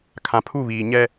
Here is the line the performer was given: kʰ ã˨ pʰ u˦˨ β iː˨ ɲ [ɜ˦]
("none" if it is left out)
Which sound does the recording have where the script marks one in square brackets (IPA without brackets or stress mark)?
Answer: ɛ˦